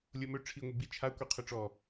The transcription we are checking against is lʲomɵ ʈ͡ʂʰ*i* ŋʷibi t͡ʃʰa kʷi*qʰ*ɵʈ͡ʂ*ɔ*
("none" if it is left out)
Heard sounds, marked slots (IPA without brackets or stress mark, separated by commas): i, qʰ, ɔ